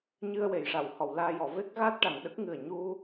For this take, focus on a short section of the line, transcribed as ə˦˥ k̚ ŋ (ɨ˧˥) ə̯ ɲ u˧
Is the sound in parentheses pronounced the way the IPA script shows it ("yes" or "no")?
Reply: no